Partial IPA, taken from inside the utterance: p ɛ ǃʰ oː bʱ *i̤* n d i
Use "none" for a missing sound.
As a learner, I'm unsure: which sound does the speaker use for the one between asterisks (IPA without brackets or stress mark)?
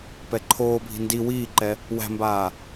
i̤